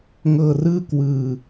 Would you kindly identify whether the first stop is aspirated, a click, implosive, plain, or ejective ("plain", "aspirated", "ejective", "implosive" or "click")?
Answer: plain